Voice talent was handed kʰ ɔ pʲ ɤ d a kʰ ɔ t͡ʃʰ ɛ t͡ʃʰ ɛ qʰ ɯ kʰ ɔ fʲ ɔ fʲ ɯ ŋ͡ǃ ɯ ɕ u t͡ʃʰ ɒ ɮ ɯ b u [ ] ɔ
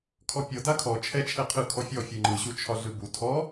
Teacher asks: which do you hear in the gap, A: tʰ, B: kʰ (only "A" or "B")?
A